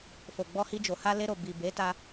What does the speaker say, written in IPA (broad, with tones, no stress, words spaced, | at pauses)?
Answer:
fo˨ɡ͡bɔ˧hi˧d͡ʒo˨ ha˧le˧ɾo˨ bi˨ be˨˦ta˧